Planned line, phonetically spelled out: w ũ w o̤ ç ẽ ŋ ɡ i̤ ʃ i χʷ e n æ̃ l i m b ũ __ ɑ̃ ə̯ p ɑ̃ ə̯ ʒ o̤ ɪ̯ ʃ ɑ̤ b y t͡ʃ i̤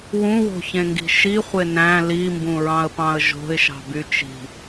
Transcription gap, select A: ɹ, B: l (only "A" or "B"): A